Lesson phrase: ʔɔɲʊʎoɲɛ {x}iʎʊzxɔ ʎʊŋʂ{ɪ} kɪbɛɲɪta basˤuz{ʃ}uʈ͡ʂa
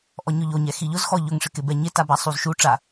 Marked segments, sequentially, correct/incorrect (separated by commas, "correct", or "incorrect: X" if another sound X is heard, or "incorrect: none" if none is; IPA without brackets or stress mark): correct, correct, correct